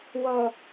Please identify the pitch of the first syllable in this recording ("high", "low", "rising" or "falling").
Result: low